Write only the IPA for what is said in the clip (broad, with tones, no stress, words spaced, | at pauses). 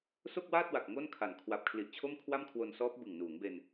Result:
so˥˩k̚waː˥˩t̚wa˨˩k̚ ŋo˥˩nkʰa˨˩n kʰwa˨˩p̚kʰli˨˩ʔ t͡ɕʰo˥˩mkʰwa˥˩mkʰwo˧nsɔː˦˥p̚ bɯ˨˩ŋnuː˩˦ŋbe˧n